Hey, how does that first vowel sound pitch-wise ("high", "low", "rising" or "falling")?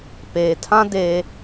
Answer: low